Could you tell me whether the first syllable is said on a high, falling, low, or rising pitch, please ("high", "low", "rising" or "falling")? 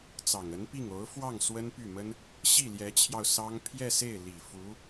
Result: low